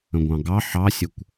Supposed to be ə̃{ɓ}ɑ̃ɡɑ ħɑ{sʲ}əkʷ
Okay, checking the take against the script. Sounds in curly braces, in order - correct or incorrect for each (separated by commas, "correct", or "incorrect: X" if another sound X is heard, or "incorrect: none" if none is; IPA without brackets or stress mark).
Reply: incorrect: ɡʷ, correct